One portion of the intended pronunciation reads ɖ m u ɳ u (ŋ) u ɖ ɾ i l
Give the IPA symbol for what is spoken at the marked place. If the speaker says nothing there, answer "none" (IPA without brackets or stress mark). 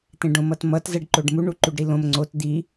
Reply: ǃ